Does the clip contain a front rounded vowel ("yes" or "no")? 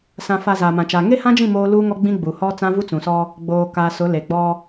no